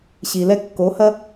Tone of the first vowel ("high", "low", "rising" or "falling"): low